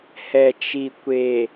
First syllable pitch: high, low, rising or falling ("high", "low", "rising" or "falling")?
low